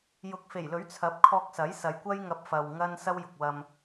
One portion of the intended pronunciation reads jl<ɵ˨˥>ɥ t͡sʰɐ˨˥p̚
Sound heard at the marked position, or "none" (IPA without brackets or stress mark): ɵ˨˥